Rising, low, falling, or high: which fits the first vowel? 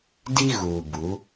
high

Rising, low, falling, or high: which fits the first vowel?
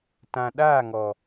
low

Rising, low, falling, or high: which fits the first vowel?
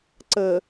low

